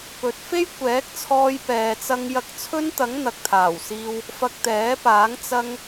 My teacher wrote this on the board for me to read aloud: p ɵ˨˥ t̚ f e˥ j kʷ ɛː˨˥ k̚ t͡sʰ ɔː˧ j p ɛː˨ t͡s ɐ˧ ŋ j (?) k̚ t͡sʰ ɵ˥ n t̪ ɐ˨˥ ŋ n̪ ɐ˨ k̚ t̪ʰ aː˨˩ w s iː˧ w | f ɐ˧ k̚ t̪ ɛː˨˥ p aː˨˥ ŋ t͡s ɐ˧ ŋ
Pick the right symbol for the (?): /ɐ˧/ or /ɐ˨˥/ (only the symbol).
ɐ˧